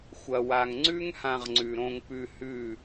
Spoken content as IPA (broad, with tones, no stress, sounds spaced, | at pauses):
xʷ ɐ˧ w a˧ ŋ ŋ͡ǀ ʉ˦ ŋ h ã˧ ʁ ŋ͡ǀ ʉ˨ ɾ õ˧ ŋ p ʉ˧ h ʉ˦˨